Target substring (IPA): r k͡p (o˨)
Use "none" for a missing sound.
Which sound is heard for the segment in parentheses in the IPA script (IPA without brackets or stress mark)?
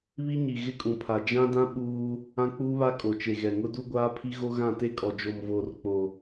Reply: o˨